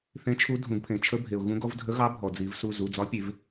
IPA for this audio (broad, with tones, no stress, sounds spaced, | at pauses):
θ ẽ˧˥ t͡ʃʰ u˧˥ dʱ ũ˨˩˦ ɡ pʰ ẽ˩ t͡ʃʰ ə˧˥ bʱ e˩ ʊ̯ ɣ ũ˧˥ ɡ ɔ˧˥ v dʱ ə˧˥ ɣ ɑ˧˥ bʱ ɔ˩ d͡z i˨˩˦ v s u˩˧˩ z u˩˧˩ d͡z ɒ˧˥ pʲ e˨˩˦ v